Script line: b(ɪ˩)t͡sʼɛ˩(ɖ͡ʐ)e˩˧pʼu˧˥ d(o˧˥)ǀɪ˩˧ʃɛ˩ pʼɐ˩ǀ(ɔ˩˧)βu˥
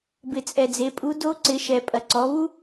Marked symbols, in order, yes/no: yes, no, yes, yes

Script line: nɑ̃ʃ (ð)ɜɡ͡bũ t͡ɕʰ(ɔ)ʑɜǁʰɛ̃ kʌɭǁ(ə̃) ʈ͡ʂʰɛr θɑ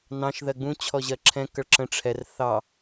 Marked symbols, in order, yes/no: yes, yes, yes

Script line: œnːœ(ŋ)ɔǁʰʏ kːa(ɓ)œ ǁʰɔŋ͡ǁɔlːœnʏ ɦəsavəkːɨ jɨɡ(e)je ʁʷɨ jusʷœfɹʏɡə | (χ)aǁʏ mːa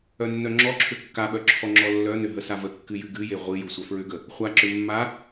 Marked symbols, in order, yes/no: no, yes, no, no

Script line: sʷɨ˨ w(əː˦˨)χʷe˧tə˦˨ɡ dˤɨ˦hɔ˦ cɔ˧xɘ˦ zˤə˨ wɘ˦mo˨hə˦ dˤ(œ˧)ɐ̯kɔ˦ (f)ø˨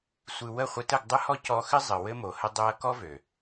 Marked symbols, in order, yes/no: no, no, no

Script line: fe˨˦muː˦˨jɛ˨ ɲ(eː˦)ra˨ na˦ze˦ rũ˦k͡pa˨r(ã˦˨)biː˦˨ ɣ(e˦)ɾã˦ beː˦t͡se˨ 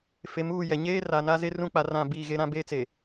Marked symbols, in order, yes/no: yes, yes, yes

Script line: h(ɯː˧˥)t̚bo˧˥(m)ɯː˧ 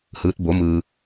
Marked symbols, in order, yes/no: yes, yes

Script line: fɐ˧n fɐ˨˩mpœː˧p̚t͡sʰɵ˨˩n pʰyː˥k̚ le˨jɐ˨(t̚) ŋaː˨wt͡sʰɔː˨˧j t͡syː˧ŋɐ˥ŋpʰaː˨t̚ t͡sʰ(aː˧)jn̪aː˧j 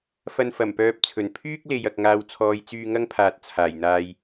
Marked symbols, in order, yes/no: no, no

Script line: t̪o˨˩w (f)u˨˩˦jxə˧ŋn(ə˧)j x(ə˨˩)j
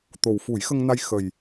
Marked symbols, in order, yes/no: yes, no, yes

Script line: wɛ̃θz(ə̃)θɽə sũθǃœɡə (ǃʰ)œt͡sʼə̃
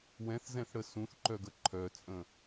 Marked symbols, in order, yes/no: no, yes

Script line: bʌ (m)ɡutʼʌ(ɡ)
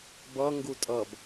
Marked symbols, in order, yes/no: no, no

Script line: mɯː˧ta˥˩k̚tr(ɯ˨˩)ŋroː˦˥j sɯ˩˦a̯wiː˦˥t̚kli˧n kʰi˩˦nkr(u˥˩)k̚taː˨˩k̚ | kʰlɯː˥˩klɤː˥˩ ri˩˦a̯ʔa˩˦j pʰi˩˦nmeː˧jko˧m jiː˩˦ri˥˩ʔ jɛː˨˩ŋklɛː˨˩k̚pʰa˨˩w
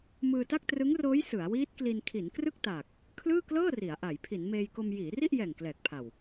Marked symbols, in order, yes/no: no, no

